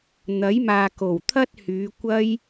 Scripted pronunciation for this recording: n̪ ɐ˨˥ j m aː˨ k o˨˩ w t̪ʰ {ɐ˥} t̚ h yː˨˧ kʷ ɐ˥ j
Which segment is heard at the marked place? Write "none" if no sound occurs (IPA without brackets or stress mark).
ɐ˥